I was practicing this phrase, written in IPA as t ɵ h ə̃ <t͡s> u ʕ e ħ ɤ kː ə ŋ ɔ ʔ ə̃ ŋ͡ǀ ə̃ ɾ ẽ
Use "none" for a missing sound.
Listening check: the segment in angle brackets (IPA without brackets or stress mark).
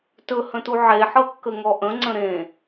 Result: t